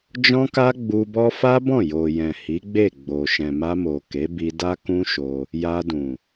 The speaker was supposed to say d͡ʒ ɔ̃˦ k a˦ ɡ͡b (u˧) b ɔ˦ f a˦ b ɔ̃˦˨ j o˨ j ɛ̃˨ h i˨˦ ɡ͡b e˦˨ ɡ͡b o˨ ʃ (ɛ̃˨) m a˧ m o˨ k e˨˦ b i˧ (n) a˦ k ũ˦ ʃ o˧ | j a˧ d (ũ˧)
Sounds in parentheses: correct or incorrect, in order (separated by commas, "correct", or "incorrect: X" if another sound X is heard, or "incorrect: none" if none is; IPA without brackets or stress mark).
correct, correct, incorrect: d, incorrect: ũ˨